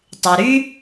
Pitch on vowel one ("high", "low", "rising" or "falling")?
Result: low